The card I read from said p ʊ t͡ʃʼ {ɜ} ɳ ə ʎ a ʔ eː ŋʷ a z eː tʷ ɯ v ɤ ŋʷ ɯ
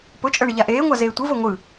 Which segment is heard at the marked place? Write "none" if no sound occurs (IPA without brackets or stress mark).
ɜ